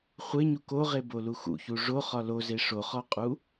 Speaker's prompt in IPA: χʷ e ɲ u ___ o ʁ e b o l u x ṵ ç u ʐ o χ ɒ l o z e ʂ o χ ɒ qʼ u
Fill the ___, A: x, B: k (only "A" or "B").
B